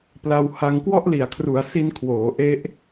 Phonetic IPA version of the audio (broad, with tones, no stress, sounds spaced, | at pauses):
p l a˧ w h a˧ ŋ k w ɔ˥˩ ʔ l i˨˩ a̯ kʰ r u˩˦ a̯ s i˧ n kʰ w oː˩˦ ʔ e˦˥ ʔ